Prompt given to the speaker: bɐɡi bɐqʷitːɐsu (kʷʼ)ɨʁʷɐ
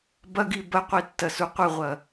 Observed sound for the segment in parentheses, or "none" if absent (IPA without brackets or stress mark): qʷ